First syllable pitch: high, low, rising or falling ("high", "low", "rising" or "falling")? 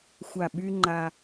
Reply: low